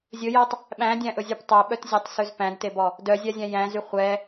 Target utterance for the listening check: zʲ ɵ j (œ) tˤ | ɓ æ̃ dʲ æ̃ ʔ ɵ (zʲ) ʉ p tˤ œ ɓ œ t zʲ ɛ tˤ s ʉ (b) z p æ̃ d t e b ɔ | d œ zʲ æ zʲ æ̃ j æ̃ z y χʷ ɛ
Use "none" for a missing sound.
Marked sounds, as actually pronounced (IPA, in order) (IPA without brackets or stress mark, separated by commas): æ, zʲ, none